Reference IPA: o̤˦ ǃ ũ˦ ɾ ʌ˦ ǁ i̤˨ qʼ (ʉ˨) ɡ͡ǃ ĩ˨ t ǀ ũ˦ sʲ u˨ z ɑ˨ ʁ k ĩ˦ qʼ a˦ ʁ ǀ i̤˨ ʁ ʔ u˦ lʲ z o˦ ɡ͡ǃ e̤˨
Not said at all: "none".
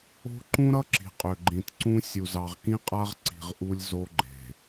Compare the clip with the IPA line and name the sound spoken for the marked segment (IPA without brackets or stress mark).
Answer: ø˨